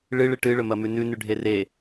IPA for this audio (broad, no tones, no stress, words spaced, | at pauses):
ɭɨɭɨ ʈɨɭɵmɐmʉ nʉnʉɖʱe re